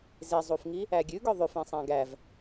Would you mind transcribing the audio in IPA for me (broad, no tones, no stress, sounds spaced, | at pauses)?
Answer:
z e zˤ u f ŋ i | æ ɡʲ ʉ ɡ œ ðˤ ʉ f ẽ sˤ æ̃ ɡ æ v